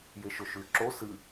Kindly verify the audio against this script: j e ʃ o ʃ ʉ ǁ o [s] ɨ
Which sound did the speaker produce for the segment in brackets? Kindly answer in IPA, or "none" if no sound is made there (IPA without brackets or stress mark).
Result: s